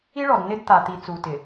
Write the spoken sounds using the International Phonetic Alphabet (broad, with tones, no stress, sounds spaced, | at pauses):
i˦ ɭ ɔ˨ d n ɪ˦ d t̪ a˨ t̪ i˨ t͡s u˨ t ɪ˨